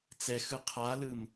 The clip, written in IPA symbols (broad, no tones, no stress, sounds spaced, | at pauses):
t͡s ɛ x ɯ qʰ a l ɯ m